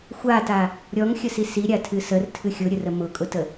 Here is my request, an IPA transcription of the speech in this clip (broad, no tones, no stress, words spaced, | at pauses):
xʷata | ɾʲɔŋxʲəsi siɾʲatʰɨ sərtʰɨ xʲʊɾʲərə mʊkʼʊtə